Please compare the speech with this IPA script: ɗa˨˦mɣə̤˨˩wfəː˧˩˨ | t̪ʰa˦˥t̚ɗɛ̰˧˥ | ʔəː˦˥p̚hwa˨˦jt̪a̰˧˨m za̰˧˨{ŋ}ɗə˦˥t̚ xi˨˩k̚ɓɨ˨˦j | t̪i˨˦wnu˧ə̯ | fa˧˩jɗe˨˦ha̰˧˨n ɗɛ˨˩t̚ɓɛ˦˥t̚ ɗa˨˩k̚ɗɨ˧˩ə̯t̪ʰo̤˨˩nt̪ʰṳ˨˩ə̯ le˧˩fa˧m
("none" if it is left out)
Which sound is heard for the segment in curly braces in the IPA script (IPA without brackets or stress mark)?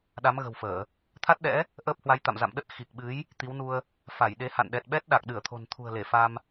m